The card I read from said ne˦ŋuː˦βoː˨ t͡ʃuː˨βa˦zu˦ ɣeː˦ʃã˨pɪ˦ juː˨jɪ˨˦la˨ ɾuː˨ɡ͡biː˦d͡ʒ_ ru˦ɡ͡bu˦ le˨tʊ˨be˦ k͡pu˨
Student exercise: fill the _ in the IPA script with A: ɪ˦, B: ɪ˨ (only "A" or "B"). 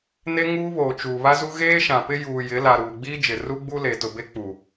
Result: B